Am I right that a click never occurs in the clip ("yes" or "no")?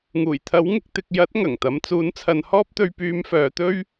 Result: yes